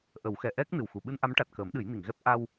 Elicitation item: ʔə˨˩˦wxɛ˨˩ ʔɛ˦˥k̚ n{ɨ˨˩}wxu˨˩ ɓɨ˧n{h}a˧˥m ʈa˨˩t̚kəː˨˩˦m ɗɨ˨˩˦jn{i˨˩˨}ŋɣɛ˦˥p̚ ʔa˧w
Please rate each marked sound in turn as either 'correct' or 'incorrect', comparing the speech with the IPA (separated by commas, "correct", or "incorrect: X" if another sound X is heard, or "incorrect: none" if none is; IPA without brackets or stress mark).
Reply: correct, incorrect: ʔ, correct